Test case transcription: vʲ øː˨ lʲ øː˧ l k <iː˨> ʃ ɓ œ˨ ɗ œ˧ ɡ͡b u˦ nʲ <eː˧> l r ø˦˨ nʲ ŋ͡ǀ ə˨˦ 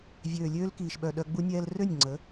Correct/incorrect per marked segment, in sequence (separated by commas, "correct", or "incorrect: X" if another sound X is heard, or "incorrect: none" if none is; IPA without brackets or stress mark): correct, incorrect: ɛː˧